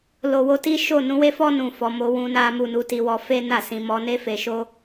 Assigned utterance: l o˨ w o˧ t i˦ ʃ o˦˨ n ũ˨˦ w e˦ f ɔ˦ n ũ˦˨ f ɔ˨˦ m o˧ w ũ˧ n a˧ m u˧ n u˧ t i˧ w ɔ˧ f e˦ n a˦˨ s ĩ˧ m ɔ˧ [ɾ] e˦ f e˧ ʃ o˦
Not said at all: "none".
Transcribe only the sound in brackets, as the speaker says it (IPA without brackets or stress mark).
n